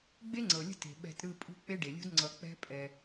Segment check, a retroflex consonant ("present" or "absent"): present